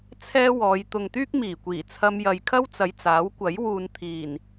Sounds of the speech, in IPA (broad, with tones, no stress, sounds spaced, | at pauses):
t͡sʰ ɛː˥ w ɔː˨˧ j t̪ ʊ˨ ŋ t̪ yː˥ k̚ m iː˨˩ kʷ iː˨˩ t͡sʰ ɐ˧ m j ɐ˨ j kʰ ɐ˥ w t͡s ɐ˨˧ j t͡s aː˨˥ w kʷ ɐ˨˥ j w uː˨ n t̪ʰ iː˨˩ n